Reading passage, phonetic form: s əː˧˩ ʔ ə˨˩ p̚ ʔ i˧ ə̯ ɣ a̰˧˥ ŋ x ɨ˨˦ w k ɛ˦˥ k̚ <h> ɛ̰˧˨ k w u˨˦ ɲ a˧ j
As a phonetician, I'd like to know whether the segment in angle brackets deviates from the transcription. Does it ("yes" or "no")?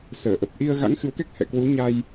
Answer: no